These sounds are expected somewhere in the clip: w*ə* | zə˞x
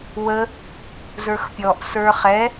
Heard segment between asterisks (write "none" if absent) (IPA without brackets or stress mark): ə